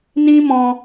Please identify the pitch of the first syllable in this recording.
high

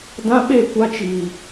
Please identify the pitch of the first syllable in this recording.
high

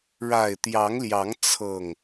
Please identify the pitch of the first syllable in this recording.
low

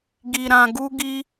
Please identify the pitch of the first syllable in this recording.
low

